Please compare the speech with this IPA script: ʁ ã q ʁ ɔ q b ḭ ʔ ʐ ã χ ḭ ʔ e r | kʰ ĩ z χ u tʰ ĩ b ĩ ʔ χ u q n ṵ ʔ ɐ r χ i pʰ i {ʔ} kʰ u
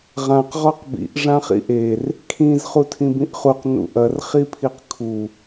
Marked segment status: incorrect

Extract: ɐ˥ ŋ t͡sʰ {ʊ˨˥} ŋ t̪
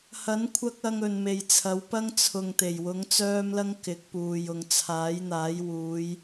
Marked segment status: incorrect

